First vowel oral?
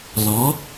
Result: yes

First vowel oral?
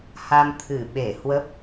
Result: yes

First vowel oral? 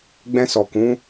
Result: no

